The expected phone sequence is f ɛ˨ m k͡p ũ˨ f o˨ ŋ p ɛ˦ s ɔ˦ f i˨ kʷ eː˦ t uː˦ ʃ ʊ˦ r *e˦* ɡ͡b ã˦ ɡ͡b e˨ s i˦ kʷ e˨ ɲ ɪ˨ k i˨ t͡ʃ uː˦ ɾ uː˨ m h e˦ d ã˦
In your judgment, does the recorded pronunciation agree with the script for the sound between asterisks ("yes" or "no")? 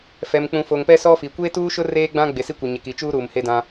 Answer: no